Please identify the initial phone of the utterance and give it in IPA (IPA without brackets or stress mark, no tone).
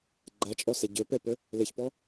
ɡ͡ǃ